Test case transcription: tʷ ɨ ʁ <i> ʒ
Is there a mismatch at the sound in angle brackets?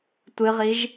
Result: no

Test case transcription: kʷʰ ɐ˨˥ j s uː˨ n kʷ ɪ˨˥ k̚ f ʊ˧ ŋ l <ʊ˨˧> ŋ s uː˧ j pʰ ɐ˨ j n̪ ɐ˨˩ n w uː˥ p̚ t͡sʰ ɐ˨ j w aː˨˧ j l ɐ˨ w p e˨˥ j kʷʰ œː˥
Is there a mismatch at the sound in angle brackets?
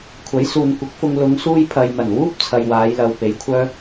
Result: no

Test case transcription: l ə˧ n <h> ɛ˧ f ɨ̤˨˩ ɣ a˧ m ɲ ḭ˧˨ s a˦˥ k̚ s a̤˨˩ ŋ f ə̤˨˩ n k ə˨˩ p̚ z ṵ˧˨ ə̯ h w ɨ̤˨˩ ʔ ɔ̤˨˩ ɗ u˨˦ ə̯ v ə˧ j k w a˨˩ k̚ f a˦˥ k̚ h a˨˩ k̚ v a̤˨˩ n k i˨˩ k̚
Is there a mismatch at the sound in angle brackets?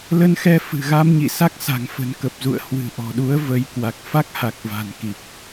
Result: yes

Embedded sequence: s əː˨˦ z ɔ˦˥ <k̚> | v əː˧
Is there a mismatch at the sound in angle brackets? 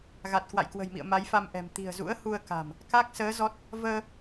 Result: yes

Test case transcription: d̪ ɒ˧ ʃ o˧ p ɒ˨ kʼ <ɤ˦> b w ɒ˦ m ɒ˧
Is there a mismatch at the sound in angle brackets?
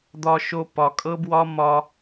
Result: no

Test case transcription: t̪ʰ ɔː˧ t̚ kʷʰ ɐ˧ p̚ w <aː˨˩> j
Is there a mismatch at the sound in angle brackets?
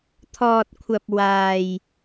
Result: yes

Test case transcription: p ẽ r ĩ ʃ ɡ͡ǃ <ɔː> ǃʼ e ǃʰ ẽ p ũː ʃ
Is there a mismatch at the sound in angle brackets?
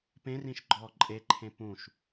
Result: no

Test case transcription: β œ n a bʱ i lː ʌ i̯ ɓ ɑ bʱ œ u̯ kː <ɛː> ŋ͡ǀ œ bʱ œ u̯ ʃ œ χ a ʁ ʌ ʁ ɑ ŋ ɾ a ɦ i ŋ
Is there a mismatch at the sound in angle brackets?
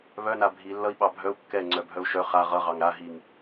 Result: yes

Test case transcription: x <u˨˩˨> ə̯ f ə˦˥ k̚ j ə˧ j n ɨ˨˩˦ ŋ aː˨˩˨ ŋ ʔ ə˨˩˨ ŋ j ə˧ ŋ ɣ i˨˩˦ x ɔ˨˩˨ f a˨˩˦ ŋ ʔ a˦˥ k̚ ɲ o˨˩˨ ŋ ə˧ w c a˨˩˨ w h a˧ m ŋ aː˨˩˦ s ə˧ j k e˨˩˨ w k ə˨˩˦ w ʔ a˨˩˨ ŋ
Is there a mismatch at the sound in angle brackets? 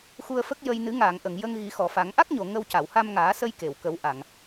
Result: yes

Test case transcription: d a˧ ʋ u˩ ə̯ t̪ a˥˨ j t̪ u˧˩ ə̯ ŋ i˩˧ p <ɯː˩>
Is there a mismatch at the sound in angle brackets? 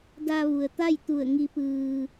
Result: no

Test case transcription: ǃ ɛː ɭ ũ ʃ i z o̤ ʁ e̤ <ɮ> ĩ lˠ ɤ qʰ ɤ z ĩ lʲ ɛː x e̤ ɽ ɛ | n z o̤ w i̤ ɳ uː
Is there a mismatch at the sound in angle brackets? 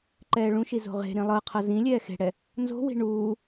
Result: yes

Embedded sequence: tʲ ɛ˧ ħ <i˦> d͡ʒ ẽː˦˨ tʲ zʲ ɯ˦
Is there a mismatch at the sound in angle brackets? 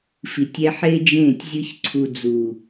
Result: yes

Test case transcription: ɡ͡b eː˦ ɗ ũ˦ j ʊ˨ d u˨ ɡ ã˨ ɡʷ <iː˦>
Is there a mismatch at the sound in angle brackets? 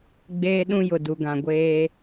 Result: yes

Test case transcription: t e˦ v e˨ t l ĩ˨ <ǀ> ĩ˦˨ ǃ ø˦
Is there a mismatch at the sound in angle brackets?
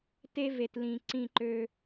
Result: no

